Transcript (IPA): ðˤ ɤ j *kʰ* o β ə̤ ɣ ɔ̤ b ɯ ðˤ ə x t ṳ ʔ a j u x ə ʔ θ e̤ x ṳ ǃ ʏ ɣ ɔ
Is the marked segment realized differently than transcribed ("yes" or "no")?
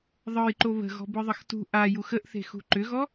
yes